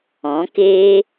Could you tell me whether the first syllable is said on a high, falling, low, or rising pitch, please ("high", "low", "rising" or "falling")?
rising